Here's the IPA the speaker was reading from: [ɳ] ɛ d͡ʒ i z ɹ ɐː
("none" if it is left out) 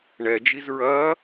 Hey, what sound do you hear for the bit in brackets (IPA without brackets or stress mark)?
ɳ